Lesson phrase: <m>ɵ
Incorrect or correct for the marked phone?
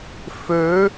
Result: incorrect: f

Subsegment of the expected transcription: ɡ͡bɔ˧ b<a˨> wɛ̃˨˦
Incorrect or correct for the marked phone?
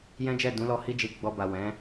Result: correct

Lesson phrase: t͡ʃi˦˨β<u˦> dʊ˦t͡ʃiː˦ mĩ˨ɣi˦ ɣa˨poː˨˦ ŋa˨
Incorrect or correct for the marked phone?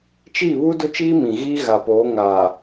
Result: correct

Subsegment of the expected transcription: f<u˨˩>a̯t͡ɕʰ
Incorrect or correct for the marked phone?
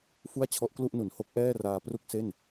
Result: incorrect: u˥˩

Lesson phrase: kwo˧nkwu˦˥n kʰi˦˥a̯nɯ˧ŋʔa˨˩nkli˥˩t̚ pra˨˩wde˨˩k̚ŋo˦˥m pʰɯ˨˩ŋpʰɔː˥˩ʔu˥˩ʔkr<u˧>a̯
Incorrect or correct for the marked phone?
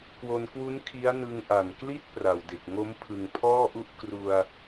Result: correct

